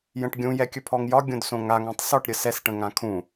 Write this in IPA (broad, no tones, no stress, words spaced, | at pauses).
jə̃ʈɡʲũ jɛkʲɵpʰɔŋjɒ ɡʲõdsõŋaŋ ãtˤsɔʈ ɾʲəsɛs ʈə̃ŋãkʰũ